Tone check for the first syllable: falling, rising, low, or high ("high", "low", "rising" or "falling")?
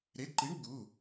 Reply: rising